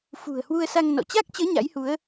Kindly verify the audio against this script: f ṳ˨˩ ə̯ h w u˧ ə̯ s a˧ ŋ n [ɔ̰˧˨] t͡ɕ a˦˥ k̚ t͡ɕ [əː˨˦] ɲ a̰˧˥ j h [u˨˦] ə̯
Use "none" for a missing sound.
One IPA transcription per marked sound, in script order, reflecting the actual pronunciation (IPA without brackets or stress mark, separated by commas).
ɔ̰˧˨, əː˨˦, u˨˦